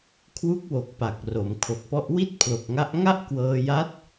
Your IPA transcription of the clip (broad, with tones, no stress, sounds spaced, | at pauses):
kʰ w u˦˥ k̚ w o˨˩ k̚ p a˨˩ k̚ r o˩˦ m kʰ o˨˩ k̚ p ɔ˦˥ ʔ w i˥˩ t̚ pʰ l o˨˩ k̚ ŋ a˦˥ ʔ ŋ a˥˩ ʔ k w ɤː˧ j a˦˥ t̚